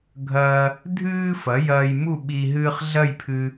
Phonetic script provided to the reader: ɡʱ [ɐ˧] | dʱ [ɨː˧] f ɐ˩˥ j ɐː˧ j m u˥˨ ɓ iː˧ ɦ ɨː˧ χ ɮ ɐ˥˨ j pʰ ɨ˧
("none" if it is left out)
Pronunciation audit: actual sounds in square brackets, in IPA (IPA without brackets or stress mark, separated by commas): ɐː˧, ɨː˧